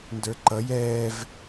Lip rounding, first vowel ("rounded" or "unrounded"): unrounded